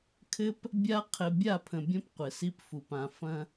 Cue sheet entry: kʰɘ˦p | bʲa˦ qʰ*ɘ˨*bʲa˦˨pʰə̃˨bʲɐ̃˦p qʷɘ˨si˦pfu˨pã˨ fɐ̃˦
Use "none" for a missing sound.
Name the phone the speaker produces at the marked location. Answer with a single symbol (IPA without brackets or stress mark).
ɘ˨